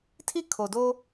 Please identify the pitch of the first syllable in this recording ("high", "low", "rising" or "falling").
high